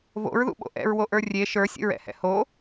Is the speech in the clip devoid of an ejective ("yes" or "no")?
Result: yes